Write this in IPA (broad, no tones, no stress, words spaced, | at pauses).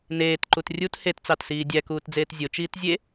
neːtǃut rʲut hett͡sɑtsiː dʲækuːtd͡zeːt zʲot͡ʃiːt zʲe